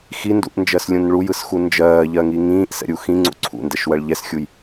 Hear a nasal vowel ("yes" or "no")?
yes